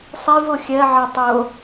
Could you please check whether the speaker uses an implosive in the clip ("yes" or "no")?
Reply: no